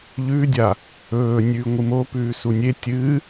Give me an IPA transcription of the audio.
ʎʉdʲa | ɵː nʲʉːŋʷɨmo pʉːsunʲe tʲɨː

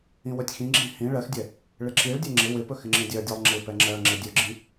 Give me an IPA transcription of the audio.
ĩwɵtʲxĩɡ͡ǁĩ hĩ ɭɜxdʲɛ | ɭɪǁiɭdʲɛ ŋ͡ǁɪ wɪpɵ xɪŋ͡ǁĩdʲɜdʲɜlˠ ŋ͡ǁɪpɛ ŋ͡ǁɜŋ͡ǁɪ dʲɵɡ͡ǁĩ

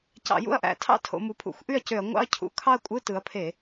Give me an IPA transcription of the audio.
cɑ̰˧˩˧jṵ˥˩ɐ̯ʔæ̰˧˩˧tʰɑ̰˦˥ tʰo̰˩˧mu˩˧pʰṵ˧˩˧xʷ ʔy˥˩ɐ̯cø˧˩˧ɐ̯ ŋʷɑ̰˥˧ɐ̯cʰṵ˩˧ kʰɑ˥˧ɐ̯kʷʼɯ˧˥˧ tɯ˩˧ɐ̯pʰe˧˩˧

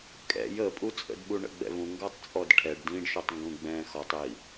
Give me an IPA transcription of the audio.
kʼɛ̰j əpʼut͡sʼə̰d ɓuɳə̰ɡ͡bɛ̰vũ ŋɡɔtˤt͡sʼɔdʈʰɛɖ dĩɖʃutˤ ŋɡũɡ͡bɛ̃ːxɔtˤiː

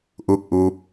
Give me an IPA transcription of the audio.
ʔu˥˩k̚ʔuː˦˥p̚

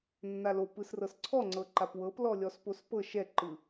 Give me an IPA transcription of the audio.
nːalopɯsrɤs ǀʰɔŋ͡ǀɤ ǃapwɤplɔ lʲɔspospɤ ʃɛǃɯ

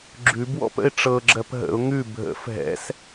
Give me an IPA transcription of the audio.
ɡ͡ǁʉbwɔ̰pə̰ɪ̯ ʈ͡ʂɤɡ͡ǁɜp ɦə̰ʊ̯ ŋʉ bʱə̰f ɦɛ̰s

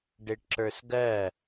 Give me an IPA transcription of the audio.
ɖeʈǁə˞sɡɜ

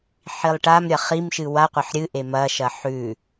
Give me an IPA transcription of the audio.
ħilˠʈamɾʲɐ χimʃɨ waqʷɐħ ɾʲɨ ʔemɐʃɐ ħʉ

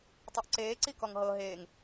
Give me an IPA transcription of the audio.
tˤɤʔǀeː ǀikɔŋɦɤ ɦeːŋ

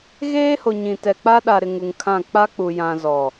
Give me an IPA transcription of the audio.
ɣeː˦ho˨ ɲĩ˨tɛ˨ k͡pa˦ ɗa˨ɾɪ˨ ŋu˨ŋkʰã˦˨ k͡pa˦k͡pu˨ jã˨ zɔ˨

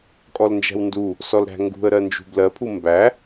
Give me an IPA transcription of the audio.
kʼɔlnd͡ʒæ̤wndu | sɔlɾæ̤ŋɡṳə̯ ɾɜnd͡ʒṳblɜpʰu mbæ

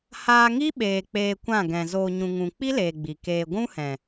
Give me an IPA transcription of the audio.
haː˧ŋi˦ɓeː˨ k͡peː˧kʷã˦˨ ɡɛ̃˨ zoː˨ɲũ˨ ŋũ˨ k͡pi˦leː˨ ɡ͡bi˨keː˧ ɡʷũ˦hɛ̃˨

